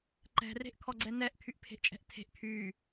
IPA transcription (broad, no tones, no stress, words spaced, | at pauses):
ǃɛ̤ re̤ʔkʰɔɡ͡ǀɛnɛʔ kʰyʔpʰe̤ʔt͡ʃʼɛ̤ʔtʰe̤ʔ kʰy